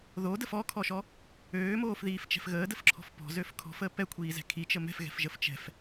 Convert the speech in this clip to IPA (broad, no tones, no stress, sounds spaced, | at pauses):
ð o d ə f ɔ kʰ ɔ ʃ ɔ | øː m oː f ð iː f t͡ʃ ɛ̤ f ɣ əː d ə f ǁʰ ɔ̤ f p ɔ̤ z ø f kʰ ɔ̤ f əː p ɛ kʷʰ iː z ɛ̤ kʰ i t͡ʃ ə m ɛ̤ f ɣ ɛ̤ f ʒ ə f t͡ʃ ɛ̤ f